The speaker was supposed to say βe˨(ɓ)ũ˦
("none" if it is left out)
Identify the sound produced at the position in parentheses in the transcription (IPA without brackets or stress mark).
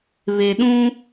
ɗ